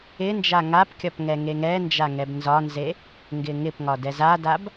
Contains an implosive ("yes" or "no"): no